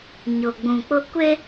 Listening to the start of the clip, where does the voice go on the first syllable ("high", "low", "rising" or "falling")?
low